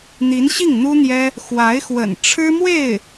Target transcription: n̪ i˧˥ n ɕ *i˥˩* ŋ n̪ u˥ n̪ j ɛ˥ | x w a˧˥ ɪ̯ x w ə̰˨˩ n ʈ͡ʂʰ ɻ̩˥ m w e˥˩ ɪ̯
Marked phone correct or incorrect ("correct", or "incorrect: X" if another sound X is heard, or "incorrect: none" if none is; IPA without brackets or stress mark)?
correct